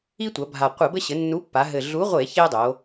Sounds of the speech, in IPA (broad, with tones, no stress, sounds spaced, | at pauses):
i˦ tʷ ɐ˩˧ bʱ a˨˩ qʷ ɘ˧˩˧ b ɘ˦ ɕ ɘ˩˧ nː u˨˥ pː a˩˧ ɦ ɘ˨˩ ɮ u˨˥ ʁʷ e˧˩˧ ç e˦ dˤ o˩˧